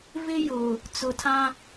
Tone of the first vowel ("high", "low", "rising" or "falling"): high